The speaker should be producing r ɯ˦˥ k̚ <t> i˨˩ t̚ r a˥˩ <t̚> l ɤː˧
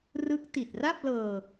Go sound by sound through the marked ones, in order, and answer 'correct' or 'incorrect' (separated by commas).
correct, incorrect